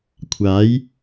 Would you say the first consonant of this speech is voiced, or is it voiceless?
voiceless